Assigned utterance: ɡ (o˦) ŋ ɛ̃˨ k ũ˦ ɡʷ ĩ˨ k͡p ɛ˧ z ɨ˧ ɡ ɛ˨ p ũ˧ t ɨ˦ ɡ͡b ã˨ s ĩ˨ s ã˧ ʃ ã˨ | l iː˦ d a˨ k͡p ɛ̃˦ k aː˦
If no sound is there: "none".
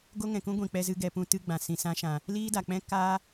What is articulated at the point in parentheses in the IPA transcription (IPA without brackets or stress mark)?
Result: o˦